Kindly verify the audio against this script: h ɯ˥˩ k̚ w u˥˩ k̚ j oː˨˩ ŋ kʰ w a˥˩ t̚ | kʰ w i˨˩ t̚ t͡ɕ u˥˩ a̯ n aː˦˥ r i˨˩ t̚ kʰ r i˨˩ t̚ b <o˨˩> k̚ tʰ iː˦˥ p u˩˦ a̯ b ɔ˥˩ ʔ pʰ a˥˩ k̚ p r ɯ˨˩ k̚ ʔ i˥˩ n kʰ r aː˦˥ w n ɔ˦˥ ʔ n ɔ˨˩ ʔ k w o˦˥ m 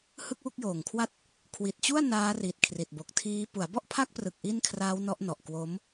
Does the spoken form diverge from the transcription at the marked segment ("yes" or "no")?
no